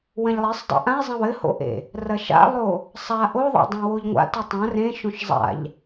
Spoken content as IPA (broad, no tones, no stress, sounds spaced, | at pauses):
w ɐ̃ ʎ lˠ e sˤ dˤ ḛ ʔ ã e̯ zˤ ɐ̃ w ɘ h o̰ ʔ ḛ | r ɐ ʃ a̰ lˠ o | sˤ a ʔ o ðˤ a̰ dˤ ã w o ʎ ŋʷ a̰ t u tˤ ã r ẽ ʃ õ ʃ zˤ a̰ ʎ